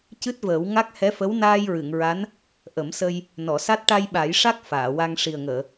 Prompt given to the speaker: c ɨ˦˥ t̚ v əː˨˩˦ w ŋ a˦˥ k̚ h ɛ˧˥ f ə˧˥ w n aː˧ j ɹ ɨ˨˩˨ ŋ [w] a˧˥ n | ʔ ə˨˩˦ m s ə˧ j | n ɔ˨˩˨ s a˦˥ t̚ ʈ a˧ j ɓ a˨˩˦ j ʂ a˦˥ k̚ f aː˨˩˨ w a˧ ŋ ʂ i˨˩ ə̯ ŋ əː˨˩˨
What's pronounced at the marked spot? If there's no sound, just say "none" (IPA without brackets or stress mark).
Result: ɹ